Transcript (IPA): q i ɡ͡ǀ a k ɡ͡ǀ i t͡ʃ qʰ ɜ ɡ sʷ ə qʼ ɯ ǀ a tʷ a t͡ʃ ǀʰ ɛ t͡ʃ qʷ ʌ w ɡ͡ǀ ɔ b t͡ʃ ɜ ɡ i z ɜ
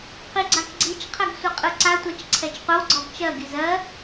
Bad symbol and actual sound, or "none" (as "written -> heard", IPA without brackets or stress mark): none